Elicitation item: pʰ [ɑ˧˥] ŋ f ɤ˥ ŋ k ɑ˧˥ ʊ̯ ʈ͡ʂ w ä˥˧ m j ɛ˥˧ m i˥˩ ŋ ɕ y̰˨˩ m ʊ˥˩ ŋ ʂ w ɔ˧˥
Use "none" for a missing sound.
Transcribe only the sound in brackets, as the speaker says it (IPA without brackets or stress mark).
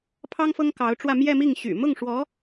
ɑ˥